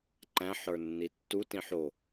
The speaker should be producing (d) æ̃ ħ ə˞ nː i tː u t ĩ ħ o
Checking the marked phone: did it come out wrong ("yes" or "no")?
yes